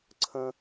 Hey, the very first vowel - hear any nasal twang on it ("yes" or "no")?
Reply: yes